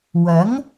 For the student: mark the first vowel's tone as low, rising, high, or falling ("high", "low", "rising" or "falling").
rising